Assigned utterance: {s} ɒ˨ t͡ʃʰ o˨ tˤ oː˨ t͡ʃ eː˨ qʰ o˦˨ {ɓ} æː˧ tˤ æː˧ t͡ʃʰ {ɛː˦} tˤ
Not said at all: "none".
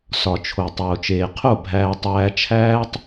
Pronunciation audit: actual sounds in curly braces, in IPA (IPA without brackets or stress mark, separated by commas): s, bʱ, æː˦